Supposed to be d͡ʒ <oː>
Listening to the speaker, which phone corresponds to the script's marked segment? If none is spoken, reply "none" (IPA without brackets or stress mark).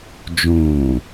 õː